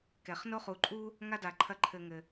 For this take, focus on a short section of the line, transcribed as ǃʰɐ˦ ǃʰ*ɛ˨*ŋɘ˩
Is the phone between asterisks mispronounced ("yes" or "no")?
yes